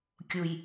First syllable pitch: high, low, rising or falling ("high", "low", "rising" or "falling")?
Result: low